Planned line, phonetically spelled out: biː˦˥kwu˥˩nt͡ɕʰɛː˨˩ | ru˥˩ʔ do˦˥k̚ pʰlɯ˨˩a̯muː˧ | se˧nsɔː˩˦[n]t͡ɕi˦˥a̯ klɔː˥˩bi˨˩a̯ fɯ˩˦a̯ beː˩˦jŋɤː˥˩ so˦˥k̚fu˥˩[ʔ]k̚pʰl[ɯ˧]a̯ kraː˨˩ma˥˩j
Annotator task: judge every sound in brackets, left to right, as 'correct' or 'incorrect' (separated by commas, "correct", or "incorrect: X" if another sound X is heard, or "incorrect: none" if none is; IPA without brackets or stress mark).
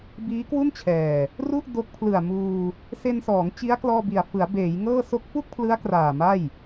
incorrect: ŋ, incorrect: none, incorrect: ɯ˦˥